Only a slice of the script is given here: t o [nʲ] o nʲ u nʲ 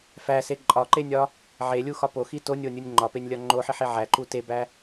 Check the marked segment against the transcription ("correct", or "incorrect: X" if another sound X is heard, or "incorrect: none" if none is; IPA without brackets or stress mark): correct